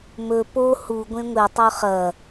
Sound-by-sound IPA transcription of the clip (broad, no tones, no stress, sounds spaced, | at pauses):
m ɵ p o h u ɡʷ ẽ ŋʷ e tˤ ɵ χ ɐ